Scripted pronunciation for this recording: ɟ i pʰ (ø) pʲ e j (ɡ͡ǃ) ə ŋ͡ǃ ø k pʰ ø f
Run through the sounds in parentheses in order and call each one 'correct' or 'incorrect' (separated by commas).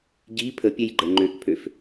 incorrect, correct